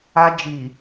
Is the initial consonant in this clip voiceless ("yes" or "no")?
no